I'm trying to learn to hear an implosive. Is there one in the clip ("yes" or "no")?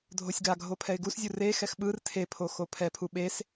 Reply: yes